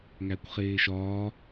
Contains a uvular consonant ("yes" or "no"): yes